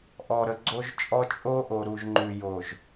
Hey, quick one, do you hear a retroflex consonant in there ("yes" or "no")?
no